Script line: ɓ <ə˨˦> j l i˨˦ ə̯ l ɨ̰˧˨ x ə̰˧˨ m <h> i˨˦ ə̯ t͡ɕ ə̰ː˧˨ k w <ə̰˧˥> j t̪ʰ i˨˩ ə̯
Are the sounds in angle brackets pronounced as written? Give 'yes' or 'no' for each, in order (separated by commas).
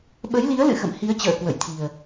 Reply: yes, yes, no